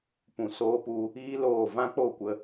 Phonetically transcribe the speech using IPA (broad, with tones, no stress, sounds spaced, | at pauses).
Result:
p ũ˨ s oː˧ p u˧ | iː˦ l oː˦˨ v ã˦ k͡p o˦˨ kʷ ə˧